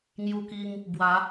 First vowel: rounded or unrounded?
rounded